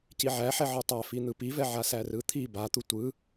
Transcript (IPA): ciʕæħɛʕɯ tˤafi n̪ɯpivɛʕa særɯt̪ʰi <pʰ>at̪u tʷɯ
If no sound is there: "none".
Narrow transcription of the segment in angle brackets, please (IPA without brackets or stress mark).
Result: b